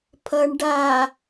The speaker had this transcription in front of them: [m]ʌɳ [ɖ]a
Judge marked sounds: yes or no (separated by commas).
no, yes